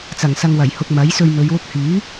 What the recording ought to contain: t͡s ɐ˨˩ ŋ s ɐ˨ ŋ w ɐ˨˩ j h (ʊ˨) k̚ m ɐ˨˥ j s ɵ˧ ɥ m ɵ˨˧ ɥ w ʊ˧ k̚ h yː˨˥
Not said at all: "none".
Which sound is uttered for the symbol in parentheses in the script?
ʊ˨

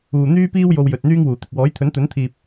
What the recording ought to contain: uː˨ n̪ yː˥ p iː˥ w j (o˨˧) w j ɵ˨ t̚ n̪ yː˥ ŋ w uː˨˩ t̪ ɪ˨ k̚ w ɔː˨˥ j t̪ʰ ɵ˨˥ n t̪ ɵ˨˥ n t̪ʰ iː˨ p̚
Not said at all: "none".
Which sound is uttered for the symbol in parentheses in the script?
o˧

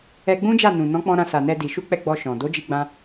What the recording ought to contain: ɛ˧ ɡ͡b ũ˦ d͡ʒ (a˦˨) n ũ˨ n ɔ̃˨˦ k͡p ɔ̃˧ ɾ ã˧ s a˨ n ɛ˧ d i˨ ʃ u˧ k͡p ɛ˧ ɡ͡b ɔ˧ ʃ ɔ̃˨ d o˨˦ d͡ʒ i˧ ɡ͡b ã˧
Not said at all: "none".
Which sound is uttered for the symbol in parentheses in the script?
a˦˨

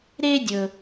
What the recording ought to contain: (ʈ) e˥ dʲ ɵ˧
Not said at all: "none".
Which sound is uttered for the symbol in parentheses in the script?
ɾ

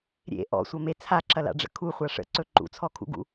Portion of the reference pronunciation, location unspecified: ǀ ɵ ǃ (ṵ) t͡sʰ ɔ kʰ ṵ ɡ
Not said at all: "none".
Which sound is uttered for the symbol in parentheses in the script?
ṵ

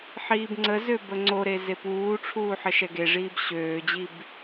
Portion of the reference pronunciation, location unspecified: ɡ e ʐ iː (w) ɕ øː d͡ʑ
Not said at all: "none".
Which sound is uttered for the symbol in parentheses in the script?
b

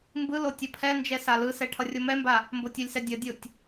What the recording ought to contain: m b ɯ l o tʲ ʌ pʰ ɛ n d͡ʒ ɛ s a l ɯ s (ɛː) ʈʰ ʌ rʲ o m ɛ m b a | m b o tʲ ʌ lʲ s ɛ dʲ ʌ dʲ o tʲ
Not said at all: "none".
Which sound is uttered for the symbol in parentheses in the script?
ɛ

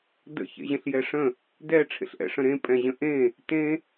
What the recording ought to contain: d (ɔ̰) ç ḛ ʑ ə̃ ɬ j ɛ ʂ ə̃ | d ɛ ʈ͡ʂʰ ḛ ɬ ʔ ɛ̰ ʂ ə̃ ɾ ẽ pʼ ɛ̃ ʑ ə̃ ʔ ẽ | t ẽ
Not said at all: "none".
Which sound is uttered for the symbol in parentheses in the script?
ə̰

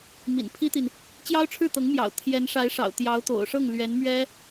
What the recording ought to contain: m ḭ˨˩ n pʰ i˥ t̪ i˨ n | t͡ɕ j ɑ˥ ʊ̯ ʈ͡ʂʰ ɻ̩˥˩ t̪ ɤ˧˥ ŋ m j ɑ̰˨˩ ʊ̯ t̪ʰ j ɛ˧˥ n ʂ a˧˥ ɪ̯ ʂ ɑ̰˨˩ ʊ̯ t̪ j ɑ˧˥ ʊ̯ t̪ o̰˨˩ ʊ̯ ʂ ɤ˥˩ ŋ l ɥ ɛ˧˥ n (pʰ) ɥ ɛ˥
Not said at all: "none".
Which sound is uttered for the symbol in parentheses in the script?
m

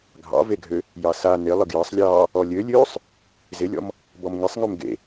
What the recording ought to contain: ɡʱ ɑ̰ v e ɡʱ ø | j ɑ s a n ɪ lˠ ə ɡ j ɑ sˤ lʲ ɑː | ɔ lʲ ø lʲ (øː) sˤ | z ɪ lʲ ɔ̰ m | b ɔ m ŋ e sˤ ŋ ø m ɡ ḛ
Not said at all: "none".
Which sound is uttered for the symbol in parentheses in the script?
øː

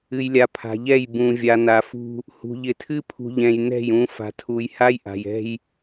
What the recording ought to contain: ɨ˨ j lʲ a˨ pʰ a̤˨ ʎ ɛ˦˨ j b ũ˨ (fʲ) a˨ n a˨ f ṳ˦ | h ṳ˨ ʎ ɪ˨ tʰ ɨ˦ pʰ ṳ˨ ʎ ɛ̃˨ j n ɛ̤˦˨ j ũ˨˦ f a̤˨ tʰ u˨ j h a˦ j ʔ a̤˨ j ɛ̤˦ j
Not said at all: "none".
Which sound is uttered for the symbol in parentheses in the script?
vʲ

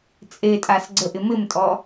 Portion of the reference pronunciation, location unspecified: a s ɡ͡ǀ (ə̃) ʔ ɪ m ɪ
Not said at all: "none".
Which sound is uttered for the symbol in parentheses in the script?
ə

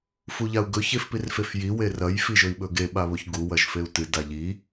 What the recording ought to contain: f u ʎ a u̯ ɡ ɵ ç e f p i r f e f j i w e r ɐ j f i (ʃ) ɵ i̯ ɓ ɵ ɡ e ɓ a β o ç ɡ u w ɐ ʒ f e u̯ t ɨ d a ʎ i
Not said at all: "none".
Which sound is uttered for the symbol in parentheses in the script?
ʒ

